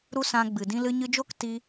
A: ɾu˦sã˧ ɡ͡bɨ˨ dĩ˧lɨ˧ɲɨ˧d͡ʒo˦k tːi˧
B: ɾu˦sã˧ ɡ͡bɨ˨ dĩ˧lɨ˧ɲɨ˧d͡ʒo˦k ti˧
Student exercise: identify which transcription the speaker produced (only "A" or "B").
B